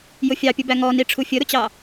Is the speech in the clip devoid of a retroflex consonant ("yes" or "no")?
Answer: no